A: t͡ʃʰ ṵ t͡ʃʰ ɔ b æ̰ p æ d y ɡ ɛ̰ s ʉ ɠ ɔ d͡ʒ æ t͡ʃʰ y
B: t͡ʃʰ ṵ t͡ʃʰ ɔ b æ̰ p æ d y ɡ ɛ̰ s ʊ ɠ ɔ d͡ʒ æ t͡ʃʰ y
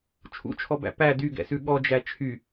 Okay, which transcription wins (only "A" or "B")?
A